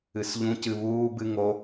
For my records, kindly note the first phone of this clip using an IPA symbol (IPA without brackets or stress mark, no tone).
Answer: ɨ